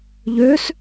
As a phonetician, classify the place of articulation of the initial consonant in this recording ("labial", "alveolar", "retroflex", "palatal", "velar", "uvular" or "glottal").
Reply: palatal